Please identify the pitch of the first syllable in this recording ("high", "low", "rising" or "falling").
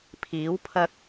rising